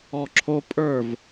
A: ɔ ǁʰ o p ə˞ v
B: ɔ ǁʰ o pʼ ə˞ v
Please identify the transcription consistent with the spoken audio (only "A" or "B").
B